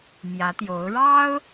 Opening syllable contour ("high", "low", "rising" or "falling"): rising